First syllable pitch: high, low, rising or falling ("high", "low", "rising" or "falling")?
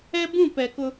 high